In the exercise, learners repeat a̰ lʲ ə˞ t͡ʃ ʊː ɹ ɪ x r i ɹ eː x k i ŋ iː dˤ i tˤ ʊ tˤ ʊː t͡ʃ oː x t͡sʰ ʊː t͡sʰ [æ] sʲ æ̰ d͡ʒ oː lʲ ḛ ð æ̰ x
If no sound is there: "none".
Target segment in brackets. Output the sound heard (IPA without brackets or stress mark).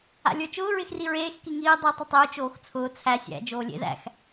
æ